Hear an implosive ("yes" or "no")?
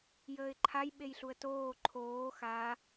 yes